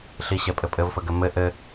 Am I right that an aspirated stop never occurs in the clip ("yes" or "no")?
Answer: yes